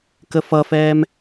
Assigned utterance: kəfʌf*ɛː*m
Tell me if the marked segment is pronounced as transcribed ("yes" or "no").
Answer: yes